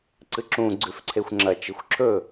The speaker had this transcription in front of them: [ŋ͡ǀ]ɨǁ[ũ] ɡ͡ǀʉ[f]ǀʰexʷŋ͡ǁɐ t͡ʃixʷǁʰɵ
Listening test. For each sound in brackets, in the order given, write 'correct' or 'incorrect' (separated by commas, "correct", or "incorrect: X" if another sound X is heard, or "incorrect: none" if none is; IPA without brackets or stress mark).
incorrect: ǀ, correct, correct